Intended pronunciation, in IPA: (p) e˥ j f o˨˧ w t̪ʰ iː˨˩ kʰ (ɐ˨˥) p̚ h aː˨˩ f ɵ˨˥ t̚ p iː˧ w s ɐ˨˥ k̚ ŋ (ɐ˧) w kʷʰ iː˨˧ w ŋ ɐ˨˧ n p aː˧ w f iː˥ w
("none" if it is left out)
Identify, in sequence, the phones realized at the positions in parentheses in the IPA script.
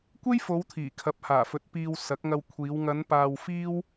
kʷ, ɐ˨˥, ɐ˧

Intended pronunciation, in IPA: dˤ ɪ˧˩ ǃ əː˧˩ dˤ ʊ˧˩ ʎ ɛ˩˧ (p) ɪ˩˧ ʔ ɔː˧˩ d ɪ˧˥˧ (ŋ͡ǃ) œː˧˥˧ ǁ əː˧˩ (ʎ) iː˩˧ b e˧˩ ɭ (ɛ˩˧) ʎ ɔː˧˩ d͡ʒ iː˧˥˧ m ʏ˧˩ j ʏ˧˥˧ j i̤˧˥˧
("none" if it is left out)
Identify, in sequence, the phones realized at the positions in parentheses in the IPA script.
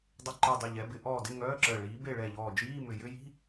b, ŋ, ɭ, ɛ˧˩

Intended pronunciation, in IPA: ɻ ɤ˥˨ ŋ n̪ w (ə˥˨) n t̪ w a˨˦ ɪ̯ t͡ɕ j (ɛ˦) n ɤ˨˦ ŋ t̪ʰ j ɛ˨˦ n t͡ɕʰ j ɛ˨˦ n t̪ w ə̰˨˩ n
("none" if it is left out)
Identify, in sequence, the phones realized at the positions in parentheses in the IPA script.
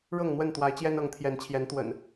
ə˥˨, ɛ˦

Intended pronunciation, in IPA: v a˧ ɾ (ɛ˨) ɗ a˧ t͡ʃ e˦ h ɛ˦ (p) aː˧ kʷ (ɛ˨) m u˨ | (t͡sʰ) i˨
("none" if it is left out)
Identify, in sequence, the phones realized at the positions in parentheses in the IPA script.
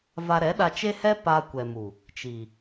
ɛ˨˦, p, ɛ˨, t͡ʃ

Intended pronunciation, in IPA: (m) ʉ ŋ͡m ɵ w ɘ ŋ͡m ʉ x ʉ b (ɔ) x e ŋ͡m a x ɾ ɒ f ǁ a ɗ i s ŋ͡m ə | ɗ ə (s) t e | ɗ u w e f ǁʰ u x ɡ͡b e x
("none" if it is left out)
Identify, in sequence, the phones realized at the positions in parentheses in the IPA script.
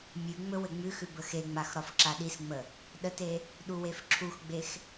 mʲ, ə, none

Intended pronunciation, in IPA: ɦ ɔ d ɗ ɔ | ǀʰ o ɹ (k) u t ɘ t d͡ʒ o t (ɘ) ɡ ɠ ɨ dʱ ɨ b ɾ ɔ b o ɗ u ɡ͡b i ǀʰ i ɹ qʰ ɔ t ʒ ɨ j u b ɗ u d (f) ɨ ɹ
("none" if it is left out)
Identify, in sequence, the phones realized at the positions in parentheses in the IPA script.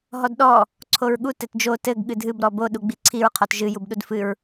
ɠ, ɘ, f

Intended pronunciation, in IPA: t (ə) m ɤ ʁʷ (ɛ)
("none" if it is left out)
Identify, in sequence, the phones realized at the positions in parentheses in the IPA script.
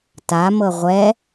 a, ɛ

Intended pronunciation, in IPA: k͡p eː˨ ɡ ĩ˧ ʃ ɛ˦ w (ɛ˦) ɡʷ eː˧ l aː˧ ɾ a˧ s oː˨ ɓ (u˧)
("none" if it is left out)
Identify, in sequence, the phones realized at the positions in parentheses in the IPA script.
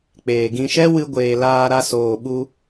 ɨ˦, u˧

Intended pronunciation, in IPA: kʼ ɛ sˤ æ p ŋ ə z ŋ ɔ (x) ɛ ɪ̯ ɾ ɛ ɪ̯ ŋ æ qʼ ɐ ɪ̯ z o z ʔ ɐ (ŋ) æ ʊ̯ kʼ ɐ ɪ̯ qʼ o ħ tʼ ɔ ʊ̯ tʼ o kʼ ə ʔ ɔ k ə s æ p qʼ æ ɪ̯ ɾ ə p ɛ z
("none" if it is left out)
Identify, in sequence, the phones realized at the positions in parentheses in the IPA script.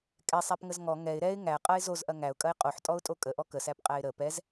ŋ, ŋ

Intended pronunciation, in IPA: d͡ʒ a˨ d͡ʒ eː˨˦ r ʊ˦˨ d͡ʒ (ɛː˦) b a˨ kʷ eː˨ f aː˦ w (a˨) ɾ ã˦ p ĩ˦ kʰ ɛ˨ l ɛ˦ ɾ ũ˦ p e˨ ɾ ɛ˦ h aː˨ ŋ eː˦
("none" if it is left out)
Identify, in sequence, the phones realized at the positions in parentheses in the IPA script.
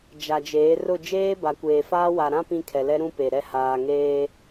eː˦, a˨

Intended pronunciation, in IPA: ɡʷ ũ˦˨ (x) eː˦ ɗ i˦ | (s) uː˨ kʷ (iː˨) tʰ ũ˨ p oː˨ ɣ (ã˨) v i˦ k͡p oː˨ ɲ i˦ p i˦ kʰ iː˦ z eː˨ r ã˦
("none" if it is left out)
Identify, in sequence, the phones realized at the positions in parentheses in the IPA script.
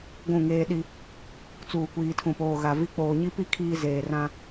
ŋ, t͡s, iː˨, a˨

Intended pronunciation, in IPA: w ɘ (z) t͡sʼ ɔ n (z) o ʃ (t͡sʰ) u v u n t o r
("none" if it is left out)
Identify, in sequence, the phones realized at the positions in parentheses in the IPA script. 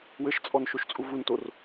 ʃ, ʃ, t͡sʼ

